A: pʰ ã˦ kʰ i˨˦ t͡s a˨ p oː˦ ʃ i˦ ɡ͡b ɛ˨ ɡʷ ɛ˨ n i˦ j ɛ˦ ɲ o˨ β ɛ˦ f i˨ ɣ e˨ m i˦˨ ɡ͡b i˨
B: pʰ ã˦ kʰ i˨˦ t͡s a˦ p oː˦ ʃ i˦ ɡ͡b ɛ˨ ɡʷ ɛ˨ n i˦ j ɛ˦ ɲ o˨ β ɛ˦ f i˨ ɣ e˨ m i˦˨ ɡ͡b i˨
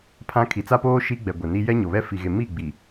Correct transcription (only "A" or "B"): B